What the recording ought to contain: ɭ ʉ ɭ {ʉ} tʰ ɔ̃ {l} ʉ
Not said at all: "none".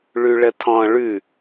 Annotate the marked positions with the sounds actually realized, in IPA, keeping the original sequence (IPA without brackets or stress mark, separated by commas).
ə, ɭ